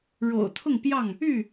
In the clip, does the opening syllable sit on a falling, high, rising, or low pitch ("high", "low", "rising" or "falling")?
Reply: low